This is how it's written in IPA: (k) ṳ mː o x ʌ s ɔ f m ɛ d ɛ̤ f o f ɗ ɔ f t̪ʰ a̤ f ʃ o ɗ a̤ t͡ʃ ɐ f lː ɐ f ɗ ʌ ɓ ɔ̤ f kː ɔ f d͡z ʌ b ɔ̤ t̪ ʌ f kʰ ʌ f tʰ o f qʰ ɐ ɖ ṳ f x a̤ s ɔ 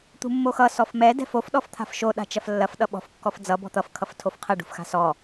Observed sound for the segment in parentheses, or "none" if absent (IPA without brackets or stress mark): t̪